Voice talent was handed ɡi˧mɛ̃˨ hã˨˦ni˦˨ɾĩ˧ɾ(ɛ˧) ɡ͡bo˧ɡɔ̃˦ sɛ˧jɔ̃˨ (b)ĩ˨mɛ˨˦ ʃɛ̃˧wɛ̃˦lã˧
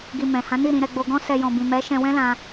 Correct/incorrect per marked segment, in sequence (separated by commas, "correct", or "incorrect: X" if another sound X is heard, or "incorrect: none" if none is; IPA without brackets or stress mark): correct, correct